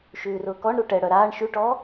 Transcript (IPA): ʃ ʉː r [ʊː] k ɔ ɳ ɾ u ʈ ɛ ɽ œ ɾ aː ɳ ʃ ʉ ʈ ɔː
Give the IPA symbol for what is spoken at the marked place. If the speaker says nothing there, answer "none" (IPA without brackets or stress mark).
ʊː